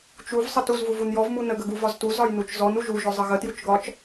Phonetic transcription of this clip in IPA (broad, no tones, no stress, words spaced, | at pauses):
t͡ʃuv sˤətuz vuvunjɔv munə ɡəɡuvɒztu zɒjnut͡ʃzɔn uʒu ʒɔzˤəɣə tjut͡ʃɡɒt͡ʃ